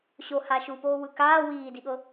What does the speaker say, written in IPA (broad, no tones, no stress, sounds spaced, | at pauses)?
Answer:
ɕ o h a ʃ u p oː w ɯ k aː w iː d i ɠ ɤ